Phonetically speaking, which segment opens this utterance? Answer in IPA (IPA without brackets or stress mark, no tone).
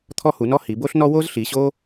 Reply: t̪ʰ